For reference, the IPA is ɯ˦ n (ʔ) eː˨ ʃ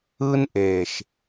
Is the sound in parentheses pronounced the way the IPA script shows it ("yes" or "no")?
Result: yes